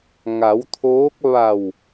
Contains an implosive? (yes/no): no